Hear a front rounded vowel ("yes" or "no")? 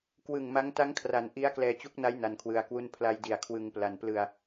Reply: no